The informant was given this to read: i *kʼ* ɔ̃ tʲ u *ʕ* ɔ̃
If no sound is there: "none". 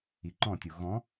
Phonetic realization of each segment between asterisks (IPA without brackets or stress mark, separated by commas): ǃ, ɣ